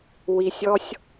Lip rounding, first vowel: unrounded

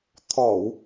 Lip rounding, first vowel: rounded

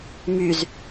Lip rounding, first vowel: rounded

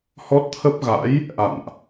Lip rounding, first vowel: rounded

